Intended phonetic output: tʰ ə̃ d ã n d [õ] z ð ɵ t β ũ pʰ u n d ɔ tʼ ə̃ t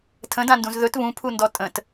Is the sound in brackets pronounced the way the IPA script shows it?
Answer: no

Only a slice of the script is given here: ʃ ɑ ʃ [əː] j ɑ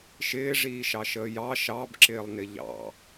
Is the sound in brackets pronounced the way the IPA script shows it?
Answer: yes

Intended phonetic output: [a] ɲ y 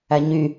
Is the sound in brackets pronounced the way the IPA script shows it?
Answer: no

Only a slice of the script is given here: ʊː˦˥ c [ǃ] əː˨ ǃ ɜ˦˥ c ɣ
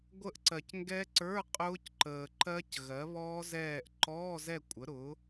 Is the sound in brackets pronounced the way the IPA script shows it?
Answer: yes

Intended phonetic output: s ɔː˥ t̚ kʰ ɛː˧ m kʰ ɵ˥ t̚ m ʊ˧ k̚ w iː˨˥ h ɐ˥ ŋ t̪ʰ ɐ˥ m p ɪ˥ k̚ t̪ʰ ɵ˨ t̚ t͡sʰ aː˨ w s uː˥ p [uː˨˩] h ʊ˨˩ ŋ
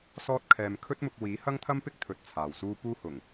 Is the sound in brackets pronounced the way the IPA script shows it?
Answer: no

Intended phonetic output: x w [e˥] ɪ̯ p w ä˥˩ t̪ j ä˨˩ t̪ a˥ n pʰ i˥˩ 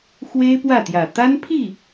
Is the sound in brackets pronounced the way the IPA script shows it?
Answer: yes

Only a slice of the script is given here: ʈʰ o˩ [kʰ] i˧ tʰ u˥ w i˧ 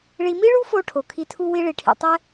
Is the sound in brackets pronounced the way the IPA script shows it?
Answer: yes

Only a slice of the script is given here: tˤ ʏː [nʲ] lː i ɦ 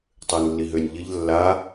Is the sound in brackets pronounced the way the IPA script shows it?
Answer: no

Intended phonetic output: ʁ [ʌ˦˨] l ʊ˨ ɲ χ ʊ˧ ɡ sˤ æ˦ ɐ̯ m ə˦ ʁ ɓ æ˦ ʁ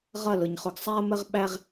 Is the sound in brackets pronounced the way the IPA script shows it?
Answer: yes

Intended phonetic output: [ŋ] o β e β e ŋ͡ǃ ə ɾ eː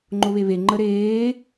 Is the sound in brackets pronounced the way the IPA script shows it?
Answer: no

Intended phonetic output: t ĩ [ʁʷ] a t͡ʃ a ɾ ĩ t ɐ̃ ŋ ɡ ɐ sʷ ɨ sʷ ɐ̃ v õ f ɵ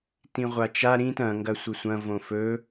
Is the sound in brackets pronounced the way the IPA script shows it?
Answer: yes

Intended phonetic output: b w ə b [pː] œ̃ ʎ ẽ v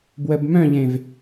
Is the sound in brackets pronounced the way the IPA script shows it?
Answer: no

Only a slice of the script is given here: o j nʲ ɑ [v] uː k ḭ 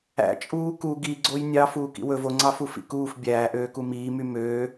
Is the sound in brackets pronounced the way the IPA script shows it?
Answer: no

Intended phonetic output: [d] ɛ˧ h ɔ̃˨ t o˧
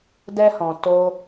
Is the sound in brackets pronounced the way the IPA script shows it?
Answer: yes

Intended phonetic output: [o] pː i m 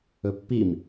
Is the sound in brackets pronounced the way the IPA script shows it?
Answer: no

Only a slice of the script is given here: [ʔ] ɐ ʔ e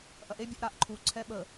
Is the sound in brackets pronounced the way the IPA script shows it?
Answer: yes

